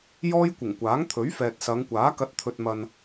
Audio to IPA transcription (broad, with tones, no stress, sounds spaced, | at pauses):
j ɔː˥ j kʷ ɪ˨˩ ŋ kʷ aː˨˥ ŋ t̪ʰ ɵ˨˥ ɥ f ɛː˨ t̚ s ɐ˨˧ ŋ kʷ aː˨˥ k ɐ˨˥ t̚ t̪ʰ ɵ˨ t̚ m ɐ˨ n